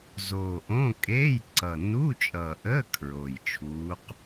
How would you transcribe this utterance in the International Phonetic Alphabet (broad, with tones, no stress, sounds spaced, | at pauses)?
z oː˨˩ ʔ õ˧˥˧ kʼ e˧˥˧ j ǀ ʌ˨˩ n u˧˥˧ t͡ʃʼ ʌ˨˩ ʔ əː˧˥˧ kʰ ɹ o˨˩ j t͡ʃʰ uː˧˥ q